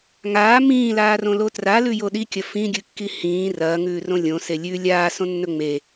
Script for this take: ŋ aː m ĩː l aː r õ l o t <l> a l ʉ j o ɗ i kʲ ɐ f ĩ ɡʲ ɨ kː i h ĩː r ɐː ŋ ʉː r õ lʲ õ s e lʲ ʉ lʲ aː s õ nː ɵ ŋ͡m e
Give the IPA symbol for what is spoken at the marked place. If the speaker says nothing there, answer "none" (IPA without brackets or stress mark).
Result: r